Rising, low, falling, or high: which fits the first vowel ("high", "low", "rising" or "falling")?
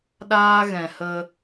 high